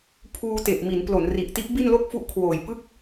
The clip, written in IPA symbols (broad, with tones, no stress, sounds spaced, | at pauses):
pʰ uː˧ t e˨˩ ʔ m i˩˦ n p l o˩˦ n r i˨˩ ʔ t i˦˥ ʔ b i˥˩ n l o˥˩ k̚ f u˦˥ ʔ kʰ w oː˨˩ j p ɯ˥˩ k̚